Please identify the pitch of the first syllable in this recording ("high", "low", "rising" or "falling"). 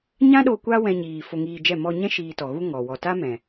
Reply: high